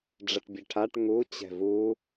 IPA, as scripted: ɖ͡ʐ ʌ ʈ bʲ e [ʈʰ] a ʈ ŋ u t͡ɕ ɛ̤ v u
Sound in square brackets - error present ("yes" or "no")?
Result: no